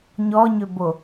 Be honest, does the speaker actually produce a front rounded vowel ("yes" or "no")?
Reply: yes